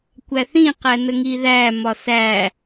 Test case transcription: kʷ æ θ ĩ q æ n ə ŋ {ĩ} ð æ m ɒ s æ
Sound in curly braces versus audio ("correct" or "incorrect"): incorrect